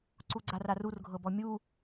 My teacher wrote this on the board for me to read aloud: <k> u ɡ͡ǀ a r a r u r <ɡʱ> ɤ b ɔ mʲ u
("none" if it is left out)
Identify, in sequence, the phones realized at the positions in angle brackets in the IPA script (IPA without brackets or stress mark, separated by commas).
ǀ, ɡʱ